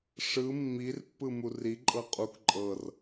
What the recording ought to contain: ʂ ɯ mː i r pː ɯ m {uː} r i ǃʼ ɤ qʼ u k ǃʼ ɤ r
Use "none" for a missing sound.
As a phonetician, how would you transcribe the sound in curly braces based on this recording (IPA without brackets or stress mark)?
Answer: u